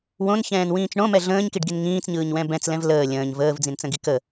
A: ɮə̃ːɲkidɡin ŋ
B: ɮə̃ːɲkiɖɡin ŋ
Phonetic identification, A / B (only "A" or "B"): B